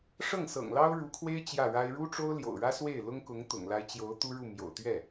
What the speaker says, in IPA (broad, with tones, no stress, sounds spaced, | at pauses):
ʂ ɤ˥˩ ŋ s ɤ̰˨˩ ŋ l ɑ˥ ʊ̯ ɻ u˧˥ kʰ w e˥ ɪ̯ t͡ɕ j ä˥˩ ɻ a˥ ɪ̯ ɻ u˥ ʈ͡ʂ o˥ ʊ̯ l j o̰˨˩ ʊ̯ ɻ ä˥ s w e˥˩ ɪ̯ l ʊ˥ ŋ k ʊ˧˥ ŋ t̪ ʊ̰˨˩ ŋ l a˧˥ ɪ̯ t͡ɕ j o˧˥ ʊ̯ t̪ u˥ ɻ u˥˩ m j o̰˨˩ ʊ̯ t̪ ɥ ɛ˥˩